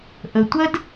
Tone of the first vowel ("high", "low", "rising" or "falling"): low